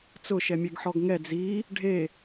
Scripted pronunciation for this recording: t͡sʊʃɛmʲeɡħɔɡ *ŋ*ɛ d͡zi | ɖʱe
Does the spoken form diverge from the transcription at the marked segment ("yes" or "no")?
no